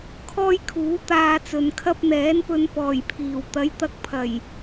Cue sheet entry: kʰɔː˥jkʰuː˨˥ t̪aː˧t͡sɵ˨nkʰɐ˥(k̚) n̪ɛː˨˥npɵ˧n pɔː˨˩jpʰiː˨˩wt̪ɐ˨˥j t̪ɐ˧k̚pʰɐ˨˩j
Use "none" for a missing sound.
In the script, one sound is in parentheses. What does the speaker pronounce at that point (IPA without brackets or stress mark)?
p̚